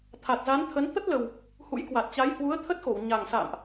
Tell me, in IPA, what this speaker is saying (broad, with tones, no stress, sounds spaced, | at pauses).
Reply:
t̪ʰ a˨˩ t̚ z a˨˦ n t̪ʰ ə˨˦ n t̪ ə˦˥ t̚ l ə˨˩ w | h ṵ˧˥ j k w a˨˩ t̚ t͡ɕ a˨˦ j h w u˨˦ ə̯ t̪ʰ ə˦˥ t̚ x o˧˩ w ɲ a˨˩ ŋ s a̰ː˧˨ m ʔ